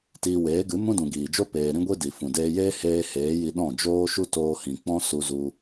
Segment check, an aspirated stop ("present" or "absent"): absent